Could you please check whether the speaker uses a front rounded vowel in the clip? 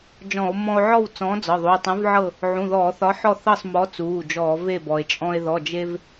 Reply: no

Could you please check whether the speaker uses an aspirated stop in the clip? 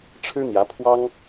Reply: yes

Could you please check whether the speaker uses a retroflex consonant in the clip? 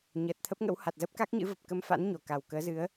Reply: no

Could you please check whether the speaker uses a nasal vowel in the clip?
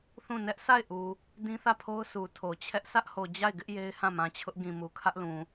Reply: yes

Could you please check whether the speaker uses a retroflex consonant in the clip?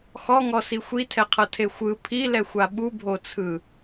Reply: no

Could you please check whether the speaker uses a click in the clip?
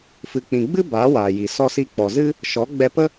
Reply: no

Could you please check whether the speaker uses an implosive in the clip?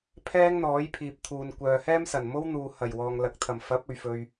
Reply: no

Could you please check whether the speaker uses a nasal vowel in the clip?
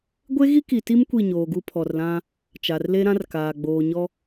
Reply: yes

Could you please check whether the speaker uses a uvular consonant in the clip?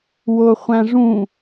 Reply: yes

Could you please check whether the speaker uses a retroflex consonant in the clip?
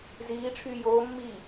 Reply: yes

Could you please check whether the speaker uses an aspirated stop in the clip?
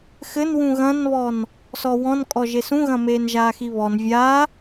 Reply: no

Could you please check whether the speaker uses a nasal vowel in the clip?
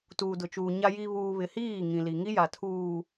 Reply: yes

